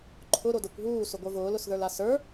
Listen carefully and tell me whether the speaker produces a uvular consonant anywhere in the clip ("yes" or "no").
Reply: no